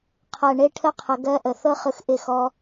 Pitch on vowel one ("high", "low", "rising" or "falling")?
low